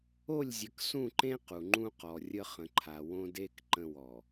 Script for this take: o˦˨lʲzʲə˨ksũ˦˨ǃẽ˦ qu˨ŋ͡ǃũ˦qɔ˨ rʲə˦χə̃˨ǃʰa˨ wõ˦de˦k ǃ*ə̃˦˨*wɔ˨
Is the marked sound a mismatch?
no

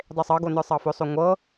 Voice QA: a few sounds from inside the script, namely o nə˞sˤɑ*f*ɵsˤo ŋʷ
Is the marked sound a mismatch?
no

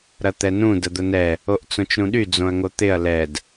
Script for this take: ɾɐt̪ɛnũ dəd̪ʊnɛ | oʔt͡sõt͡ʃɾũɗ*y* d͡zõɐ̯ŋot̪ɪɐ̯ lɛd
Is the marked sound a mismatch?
no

